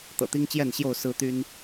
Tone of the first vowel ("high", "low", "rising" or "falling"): low